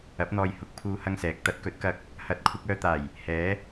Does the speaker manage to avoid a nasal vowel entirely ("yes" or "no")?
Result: yes